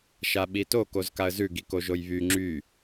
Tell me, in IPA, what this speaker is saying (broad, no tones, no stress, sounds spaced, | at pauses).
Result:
ʃ a ɓ i t o k o z k a ə̯ z ʉ ɡ i k o ʒ o j β y ŋ͡ǁ y